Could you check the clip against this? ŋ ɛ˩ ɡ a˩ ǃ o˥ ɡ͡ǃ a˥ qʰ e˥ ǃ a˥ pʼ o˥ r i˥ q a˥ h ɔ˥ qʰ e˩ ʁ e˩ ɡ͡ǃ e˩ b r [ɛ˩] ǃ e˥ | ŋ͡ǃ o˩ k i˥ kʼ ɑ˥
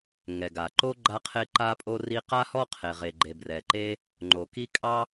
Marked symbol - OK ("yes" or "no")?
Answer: yes